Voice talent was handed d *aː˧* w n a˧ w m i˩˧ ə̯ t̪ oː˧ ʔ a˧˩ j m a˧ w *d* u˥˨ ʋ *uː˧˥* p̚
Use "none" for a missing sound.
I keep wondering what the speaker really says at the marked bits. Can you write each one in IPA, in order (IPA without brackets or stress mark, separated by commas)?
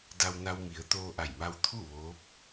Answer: a˧, t̪ʰ, oː˧˥